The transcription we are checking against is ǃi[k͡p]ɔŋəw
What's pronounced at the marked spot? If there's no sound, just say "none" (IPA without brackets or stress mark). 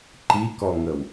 k